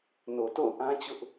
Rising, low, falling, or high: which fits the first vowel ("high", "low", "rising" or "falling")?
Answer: low